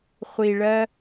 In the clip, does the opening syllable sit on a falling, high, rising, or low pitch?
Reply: low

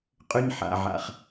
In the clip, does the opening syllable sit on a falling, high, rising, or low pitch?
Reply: high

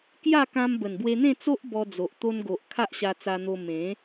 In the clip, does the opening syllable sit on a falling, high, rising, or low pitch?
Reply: falling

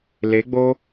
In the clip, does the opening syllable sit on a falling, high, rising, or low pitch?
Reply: rising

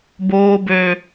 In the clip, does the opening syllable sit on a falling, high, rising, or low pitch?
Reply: high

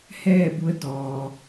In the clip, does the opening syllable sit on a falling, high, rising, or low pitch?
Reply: falling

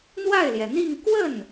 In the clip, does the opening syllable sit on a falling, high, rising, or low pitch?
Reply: falling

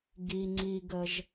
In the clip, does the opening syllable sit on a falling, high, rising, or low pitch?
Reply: low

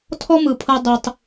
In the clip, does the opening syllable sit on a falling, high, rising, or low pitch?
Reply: high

